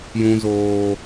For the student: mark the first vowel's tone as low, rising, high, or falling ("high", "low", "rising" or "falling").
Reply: high